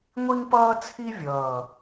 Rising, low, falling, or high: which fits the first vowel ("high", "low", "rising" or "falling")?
high